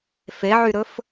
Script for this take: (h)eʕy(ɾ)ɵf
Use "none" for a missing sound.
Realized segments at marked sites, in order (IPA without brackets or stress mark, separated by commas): f, ɾ